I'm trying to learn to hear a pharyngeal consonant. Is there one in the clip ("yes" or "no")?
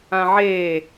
yes